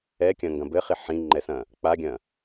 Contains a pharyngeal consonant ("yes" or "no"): yes